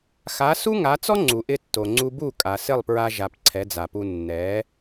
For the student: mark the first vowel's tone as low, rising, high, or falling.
rising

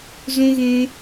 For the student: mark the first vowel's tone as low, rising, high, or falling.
high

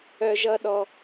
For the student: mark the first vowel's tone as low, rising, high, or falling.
high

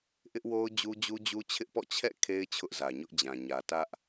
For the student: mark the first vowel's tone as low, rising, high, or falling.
high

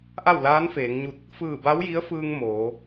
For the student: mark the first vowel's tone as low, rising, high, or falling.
falling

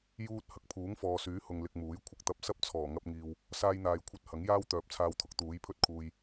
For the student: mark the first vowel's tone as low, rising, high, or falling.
high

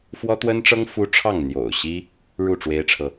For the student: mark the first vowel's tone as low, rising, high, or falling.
high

